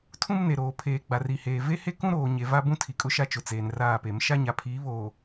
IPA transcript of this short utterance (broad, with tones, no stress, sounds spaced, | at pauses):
tʰ ũ˦ m n e˨ ɾ oː˨ pʰ eː˨ ɡ͡b a˨ r i˨ h eː˨ v e˦ h e˦ k ũ˦ ɾ oː˨ ɲ e˨ v a˦ b ũ˦ tʰ i˨ kʼ ʊ˦ ʃ a˦ t͡ʃ ʊ˨ t͡s eː˨ n r aː˦˨ p e˨˦ m ʃ a˦ ɲ a˨ pʰ iː˨˦ β oː˨